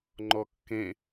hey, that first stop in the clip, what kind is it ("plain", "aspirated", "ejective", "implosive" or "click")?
click